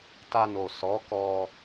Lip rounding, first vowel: unrounded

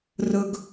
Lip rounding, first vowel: rounded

